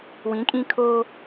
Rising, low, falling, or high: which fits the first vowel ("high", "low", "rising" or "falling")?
rising